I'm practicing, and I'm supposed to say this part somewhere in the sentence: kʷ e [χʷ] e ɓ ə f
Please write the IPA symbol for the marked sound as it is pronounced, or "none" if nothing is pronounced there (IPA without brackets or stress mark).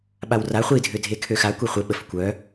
χʷ